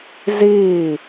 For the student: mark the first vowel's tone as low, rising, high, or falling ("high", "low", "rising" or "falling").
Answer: falling